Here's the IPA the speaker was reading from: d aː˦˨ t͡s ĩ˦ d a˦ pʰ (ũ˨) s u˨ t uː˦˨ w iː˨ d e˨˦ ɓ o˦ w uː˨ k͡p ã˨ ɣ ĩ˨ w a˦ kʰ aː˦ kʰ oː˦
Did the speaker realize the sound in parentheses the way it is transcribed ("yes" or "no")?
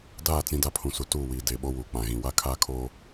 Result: yes